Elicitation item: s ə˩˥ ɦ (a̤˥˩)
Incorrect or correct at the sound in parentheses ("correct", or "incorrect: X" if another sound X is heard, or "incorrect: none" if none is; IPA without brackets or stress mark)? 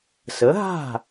correct